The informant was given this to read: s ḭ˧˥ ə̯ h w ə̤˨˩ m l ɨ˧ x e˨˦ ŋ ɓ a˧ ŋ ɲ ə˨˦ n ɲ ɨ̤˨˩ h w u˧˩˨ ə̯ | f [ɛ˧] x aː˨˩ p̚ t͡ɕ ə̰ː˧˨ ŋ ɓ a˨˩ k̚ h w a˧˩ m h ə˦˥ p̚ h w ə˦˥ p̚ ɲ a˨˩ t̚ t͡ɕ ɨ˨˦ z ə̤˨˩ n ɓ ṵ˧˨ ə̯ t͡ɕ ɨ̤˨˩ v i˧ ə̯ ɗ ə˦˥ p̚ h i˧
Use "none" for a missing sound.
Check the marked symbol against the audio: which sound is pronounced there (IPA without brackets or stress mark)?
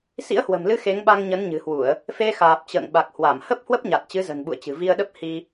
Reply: e˧